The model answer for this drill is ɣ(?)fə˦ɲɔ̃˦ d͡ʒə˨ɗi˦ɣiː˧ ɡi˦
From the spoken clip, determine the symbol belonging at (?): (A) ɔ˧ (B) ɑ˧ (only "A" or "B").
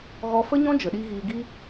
A